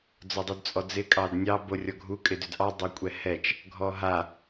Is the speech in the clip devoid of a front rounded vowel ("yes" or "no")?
no